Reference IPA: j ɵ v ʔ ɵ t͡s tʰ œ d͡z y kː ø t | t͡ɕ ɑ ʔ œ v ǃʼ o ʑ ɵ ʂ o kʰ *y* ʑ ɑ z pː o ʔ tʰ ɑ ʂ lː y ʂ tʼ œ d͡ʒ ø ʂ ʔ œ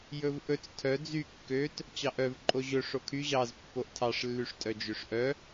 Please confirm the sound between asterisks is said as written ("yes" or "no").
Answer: yes